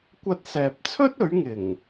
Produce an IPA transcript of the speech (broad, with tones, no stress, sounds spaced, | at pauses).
kʷ ɐ˧ t̚ s ɛː˨ p̚ t͡sʰ ɵ˥ t̚ ɵ˨˥ ɥ ŋ ɪ˨˩ ŋ